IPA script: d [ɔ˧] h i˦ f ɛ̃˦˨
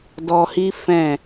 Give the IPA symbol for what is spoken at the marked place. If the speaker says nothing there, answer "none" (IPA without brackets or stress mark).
ɔ˧